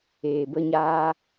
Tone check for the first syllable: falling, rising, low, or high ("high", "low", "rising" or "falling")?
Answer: low